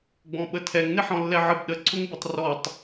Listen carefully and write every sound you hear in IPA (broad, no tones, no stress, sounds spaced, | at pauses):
ɡ͡b ɔ̃ ɓ ə tʰ ɛ ŋ n ɪ ħ ɔ̃ lː ɛ ʕ ə b ɗ ə ǀʰ ʊ ŋ b ɪ tˤ r ɔ tˤ